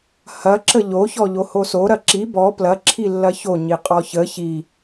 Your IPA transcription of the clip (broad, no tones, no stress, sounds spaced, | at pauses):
h ɐ ǁ ə ʎ o ç ɔ ʎ o h o s o ɾ ɐ ǁ i b ɔ p l ɐ ǁʰ i lː ɐ ç o ɲ i qʼ ɔ ç ə ç i